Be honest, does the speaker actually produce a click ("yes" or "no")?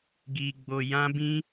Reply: no